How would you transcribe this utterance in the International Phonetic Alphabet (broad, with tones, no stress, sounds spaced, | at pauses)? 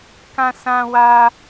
k ã˦ s ã˦ w a˦